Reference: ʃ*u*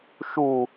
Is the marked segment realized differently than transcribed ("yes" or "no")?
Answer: no